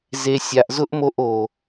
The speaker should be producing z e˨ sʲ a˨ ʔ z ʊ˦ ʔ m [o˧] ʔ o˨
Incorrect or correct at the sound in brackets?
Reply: correct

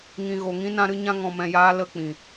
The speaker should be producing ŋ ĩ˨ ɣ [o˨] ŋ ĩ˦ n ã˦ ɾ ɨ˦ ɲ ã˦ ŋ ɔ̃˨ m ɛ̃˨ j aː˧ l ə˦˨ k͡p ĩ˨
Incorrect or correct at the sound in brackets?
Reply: correct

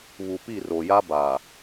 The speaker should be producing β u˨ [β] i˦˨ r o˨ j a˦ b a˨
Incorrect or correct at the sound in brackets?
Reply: incorrect: p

